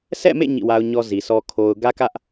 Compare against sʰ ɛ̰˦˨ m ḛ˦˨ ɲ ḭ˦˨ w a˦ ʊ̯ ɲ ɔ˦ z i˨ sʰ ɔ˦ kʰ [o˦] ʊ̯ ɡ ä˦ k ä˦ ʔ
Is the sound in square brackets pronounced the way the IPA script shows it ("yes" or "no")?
yes